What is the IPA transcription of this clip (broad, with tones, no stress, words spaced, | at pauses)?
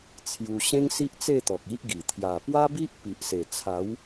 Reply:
t͡sʰju˧ ɕẽ˦ŋsi˦ʔt͡se˥˧t̪ɔ˨k̚ i˦ʔɡi˨˩ t̪ʰja˨˩pwa˦bi˦ʔ pi˨ʔse˨˩ t͡sʰa˨˦w